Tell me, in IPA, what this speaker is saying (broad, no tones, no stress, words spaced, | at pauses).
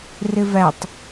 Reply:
rɪvætˤ